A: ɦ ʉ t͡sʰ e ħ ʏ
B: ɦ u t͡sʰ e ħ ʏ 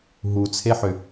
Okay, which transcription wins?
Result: B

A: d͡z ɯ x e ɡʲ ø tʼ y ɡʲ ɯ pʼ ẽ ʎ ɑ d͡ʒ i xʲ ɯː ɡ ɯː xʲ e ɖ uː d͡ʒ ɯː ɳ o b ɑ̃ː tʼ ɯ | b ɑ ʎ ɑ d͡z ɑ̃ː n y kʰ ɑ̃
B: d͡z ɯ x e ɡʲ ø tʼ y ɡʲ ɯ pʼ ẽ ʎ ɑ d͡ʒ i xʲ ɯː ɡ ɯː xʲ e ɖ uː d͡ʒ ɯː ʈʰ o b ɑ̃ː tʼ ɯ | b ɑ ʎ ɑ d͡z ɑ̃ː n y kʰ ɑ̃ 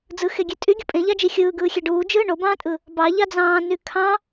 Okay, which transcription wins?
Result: A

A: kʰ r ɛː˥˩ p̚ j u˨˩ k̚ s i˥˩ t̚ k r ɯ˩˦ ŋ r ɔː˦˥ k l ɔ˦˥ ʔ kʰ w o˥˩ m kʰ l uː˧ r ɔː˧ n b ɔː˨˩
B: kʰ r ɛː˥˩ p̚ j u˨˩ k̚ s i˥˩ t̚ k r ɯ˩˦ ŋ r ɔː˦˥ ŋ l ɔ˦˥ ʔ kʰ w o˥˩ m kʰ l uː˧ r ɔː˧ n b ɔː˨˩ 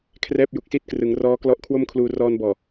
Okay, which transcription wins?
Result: A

